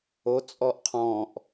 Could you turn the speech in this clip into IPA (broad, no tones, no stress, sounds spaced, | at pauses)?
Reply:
o t͡sʼ ɔ ʔ qʰ ɔ̃ ʔ